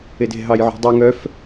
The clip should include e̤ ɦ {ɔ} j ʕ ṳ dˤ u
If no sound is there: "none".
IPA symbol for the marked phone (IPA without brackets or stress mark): ɑ